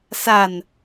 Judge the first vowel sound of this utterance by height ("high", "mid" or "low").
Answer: low